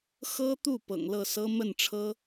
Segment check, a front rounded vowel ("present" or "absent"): absent